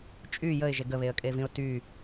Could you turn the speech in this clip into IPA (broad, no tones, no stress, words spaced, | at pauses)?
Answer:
t͡ʃʼy jəɪ̯ʒe ɡəβeə̯kʼevĩʊ̯ ty